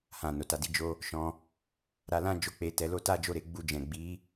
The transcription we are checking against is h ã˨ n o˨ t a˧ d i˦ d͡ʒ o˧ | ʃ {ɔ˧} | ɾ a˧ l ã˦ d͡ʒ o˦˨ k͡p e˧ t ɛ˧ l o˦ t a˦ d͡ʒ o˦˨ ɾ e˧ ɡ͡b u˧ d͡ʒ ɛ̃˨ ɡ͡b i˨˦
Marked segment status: incorrect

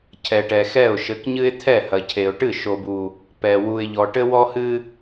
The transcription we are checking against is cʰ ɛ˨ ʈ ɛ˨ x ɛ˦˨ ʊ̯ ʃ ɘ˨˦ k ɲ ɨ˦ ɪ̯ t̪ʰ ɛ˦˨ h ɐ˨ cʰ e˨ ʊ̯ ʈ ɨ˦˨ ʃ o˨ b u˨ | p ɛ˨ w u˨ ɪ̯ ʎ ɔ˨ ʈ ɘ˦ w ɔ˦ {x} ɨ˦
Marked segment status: incorrect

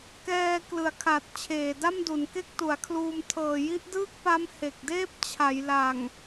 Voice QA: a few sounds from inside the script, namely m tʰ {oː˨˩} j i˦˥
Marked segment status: incorrect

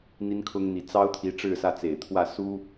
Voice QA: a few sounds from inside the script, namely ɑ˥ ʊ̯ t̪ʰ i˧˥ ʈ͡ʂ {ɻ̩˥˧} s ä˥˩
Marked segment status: correct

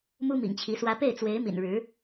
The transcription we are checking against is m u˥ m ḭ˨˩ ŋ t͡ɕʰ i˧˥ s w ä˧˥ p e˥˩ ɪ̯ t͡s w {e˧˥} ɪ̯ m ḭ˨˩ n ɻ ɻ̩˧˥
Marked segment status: correct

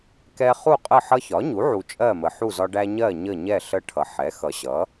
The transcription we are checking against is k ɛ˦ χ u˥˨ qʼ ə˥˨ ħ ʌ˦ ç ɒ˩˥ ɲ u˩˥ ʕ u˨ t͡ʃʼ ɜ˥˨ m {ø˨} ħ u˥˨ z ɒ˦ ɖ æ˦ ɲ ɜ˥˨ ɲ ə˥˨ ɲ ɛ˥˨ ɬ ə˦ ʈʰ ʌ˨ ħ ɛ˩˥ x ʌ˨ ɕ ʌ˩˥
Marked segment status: incorrect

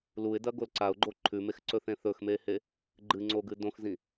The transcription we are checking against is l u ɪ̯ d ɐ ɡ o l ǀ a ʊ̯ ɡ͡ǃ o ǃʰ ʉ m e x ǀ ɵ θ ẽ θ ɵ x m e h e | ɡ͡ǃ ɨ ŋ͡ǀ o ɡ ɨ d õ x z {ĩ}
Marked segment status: correct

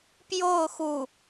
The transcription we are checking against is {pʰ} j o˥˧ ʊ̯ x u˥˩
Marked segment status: incorrect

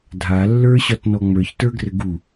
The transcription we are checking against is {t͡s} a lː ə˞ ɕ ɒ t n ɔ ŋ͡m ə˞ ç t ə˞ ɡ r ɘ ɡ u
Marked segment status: incorrect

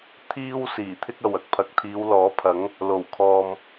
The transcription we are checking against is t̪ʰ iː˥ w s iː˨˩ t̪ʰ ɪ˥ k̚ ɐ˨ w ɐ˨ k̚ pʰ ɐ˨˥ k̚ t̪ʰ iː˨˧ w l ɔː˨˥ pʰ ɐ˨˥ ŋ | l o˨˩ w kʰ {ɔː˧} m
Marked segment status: incorrect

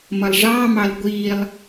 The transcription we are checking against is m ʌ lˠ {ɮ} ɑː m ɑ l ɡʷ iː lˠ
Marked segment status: incorrect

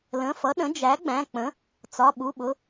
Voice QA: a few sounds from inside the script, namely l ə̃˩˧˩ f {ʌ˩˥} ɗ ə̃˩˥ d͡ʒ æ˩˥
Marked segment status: correct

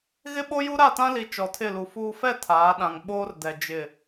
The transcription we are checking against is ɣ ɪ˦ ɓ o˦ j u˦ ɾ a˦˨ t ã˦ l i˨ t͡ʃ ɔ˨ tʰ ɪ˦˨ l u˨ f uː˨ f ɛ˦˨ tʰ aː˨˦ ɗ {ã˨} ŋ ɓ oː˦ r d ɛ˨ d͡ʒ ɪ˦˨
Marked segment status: correct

